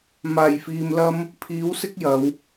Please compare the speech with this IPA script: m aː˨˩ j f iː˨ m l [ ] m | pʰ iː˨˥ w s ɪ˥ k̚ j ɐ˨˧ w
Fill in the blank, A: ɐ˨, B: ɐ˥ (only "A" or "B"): B